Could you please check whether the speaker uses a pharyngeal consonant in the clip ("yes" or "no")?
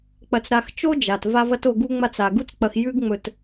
no